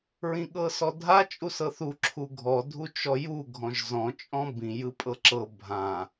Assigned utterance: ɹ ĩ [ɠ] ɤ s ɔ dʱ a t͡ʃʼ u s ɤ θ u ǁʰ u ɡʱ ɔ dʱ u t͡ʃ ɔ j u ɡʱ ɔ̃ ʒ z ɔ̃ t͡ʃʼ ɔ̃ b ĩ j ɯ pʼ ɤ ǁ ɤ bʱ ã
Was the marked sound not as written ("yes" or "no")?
no